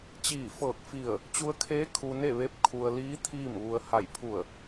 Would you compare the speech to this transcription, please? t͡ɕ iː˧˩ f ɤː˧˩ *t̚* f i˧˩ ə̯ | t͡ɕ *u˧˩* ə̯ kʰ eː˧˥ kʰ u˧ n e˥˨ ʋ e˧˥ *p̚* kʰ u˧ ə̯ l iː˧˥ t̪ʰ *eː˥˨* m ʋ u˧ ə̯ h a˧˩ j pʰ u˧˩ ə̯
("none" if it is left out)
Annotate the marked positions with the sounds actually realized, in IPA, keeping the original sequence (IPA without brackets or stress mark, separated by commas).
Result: k̚, u˧, p̚, iː˥˨